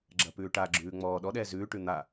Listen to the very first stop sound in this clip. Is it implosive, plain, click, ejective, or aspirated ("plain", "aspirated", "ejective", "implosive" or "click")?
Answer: click